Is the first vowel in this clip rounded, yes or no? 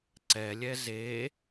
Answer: no